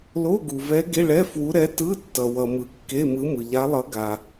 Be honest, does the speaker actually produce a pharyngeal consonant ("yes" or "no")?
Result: no